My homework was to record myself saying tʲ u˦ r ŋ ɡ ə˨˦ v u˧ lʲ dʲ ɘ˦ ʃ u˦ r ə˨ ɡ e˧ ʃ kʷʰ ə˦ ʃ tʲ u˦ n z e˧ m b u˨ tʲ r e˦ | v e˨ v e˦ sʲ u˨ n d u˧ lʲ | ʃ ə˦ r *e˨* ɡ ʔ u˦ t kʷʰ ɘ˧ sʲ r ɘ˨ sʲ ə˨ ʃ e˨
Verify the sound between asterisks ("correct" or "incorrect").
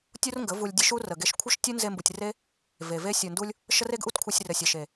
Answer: incorrect